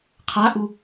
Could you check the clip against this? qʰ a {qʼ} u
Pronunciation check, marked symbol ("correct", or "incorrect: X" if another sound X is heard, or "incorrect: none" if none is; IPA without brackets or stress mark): incorrect: ʔ